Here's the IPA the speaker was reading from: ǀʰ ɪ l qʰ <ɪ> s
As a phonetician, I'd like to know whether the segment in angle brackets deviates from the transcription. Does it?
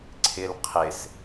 no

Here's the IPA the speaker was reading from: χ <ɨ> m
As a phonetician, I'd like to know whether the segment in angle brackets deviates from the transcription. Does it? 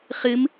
no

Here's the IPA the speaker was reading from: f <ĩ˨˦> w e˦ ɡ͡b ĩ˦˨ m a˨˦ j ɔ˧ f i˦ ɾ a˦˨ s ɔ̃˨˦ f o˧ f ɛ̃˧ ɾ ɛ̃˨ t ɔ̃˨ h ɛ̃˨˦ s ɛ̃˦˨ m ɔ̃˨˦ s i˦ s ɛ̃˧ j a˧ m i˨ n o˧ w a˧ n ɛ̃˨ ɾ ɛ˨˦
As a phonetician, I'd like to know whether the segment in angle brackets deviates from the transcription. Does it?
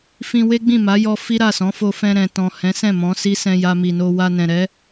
yes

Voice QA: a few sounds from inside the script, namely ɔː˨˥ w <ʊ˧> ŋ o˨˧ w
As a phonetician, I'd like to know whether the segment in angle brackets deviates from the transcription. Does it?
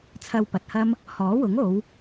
yes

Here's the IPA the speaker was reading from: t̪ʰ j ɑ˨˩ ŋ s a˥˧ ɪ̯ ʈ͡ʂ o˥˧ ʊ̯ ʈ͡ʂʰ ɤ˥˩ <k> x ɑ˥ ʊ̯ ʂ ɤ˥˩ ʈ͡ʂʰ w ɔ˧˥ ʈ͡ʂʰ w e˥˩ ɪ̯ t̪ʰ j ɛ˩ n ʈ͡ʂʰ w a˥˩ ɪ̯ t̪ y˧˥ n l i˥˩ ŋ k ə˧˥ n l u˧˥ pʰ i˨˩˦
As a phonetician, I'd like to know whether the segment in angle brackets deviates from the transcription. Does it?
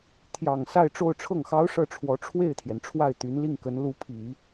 yes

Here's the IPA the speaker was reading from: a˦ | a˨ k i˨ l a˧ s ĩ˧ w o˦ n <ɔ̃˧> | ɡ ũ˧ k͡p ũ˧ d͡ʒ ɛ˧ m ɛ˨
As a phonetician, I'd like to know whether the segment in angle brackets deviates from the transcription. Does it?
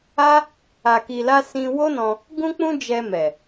no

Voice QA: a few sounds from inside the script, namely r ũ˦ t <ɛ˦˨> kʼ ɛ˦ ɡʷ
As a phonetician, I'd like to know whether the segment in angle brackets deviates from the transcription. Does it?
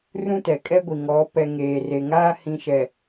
yes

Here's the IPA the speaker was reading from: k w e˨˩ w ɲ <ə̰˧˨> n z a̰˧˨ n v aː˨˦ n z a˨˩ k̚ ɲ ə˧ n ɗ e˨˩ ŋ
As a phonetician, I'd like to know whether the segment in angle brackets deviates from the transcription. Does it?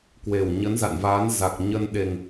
yes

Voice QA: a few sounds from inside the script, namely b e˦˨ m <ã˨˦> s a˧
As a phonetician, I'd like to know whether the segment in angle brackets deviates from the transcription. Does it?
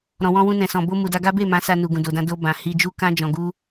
no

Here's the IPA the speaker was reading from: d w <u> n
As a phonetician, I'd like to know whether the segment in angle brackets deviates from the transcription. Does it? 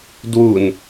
no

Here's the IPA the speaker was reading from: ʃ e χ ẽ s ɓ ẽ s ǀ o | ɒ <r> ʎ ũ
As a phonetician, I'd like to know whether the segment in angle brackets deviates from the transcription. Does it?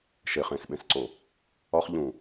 yes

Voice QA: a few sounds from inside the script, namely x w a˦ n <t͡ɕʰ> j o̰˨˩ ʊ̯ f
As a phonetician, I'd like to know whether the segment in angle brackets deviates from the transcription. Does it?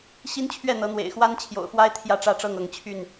no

